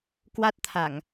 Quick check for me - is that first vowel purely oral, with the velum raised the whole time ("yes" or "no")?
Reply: yes